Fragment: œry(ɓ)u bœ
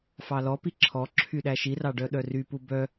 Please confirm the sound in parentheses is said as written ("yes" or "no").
no